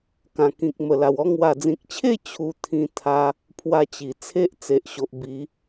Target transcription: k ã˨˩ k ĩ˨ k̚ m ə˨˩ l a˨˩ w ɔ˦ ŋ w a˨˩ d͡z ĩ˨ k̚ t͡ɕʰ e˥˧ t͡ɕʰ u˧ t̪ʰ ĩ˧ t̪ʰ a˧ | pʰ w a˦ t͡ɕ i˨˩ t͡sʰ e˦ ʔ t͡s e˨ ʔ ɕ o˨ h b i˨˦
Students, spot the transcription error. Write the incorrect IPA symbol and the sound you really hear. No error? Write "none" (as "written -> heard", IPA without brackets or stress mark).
h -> ʔ